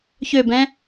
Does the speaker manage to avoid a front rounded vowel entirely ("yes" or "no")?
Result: no